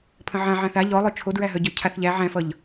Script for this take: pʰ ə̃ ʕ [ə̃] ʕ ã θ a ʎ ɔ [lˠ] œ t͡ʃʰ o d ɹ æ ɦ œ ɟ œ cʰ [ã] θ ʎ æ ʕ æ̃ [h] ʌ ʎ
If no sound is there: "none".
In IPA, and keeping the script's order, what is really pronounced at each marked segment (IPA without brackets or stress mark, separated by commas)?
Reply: ã, lˠ, a, f